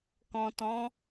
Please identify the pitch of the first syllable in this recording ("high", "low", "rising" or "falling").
low